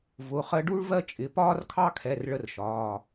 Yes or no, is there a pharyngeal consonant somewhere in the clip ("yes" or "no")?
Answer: no